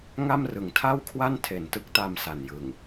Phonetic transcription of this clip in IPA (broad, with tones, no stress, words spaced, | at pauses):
ŋa˥˩mrɯ˨˩ŋtʰa˥˩wkʰwa˥˩n tʰe˨˩ntɯ˥˩k̚ta˧m sa˨˩njɯ˨˩ŋ